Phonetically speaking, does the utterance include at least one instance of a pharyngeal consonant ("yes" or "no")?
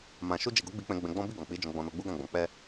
no